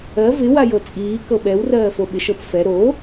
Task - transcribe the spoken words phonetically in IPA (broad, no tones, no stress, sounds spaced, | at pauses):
ɜ v ɪ w a j ɤ t͡sʼ iː k ɤ ɓ ɛ w r ɜː f o ɓ ɪ ʃ ɤ p f ɛ ɾ o